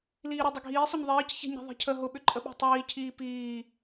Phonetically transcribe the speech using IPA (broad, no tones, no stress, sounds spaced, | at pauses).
l iː ɾ ʊ dˤ ʏ ɡʱ iː sˤ ʏ ɲ ðˤ iː c ç ɛ̤ ɲ i̤ ðˤ i̤ cʰ ə ɦ ʊ ɓ ʏ ǃʼ ə ɓ ɛ̤ tˤ iː cʰ iː p iː